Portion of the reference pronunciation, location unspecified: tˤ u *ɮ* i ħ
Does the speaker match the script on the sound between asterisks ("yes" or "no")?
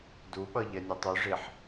no